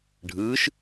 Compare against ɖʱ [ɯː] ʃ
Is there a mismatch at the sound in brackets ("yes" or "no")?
no